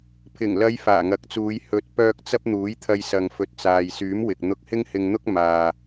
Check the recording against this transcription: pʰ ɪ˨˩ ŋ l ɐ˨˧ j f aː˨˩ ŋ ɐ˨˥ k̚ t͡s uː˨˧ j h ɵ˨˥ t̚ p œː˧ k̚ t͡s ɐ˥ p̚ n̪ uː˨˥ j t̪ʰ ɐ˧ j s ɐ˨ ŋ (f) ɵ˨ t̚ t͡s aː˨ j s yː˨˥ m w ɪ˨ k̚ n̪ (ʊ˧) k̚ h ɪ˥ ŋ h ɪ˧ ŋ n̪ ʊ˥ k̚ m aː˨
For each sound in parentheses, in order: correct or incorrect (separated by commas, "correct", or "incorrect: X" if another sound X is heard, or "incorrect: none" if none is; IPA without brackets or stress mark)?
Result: correct, correct